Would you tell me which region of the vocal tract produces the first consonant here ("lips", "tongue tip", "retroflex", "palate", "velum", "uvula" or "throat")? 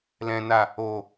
tongue tip